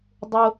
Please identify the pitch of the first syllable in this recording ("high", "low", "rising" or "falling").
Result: low